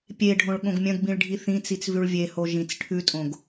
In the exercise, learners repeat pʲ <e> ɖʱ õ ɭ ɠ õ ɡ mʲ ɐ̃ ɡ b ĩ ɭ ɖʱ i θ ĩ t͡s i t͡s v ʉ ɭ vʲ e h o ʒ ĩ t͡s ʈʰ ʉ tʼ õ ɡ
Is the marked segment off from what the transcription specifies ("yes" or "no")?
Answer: no